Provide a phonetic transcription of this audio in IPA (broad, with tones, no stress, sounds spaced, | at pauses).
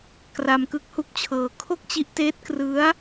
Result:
k r a˧ m k ɯ˦˥ k̚ h u˦˥ k̚ t͡ɕʰ ɤː˧ kʰ o˥˩ k̚ t͡ɕ i˦˥ ʔ t eː˦˥ t̚ k r ɯ˦˥ a̯